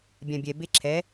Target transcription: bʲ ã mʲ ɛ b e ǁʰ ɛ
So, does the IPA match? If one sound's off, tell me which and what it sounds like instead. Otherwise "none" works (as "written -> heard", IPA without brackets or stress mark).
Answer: mʲ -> bʲ